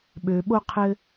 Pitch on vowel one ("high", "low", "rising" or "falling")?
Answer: low